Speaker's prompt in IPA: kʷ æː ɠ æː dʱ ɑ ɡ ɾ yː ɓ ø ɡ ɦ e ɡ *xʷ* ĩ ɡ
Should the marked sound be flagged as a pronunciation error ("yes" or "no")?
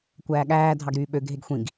no